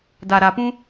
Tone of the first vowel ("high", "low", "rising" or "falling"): low